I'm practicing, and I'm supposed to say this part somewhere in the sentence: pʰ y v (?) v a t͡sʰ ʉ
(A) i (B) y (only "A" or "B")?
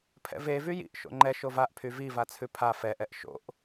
A